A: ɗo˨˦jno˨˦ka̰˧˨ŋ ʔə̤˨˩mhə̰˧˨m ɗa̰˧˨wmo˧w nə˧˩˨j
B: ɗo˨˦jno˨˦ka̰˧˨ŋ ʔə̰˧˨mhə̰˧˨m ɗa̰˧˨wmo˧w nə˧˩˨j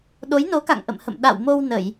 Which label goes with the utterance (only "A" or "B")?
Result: B